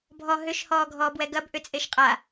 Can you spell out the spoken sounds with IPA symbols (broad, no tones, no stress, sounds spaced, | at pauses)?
bʱ ɔ ɦ ʏ ʃ h ɔː ɡʱ ɔː b w ɛ ɡ ɐ b ʔ ʏ t͡sʼ e ʃ qʼ a